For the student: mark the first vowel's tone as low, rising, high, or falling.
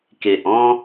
low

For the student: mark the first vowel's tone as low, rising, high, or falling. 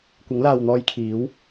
rising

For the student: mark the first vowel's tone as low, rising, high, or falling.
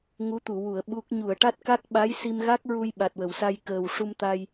rising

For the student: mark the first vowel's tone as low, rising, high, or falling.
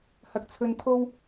low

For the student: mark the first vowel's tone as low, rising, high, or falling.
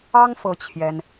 high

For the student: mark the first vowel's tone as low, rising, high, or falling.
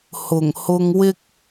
low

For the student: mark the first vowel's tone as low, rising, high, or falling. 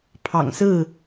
low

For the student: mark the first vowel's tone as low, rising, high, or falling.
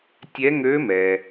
rising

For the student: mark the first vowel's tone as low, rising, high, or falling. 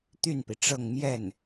falling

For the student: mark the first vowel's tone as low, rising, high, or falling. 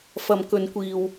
low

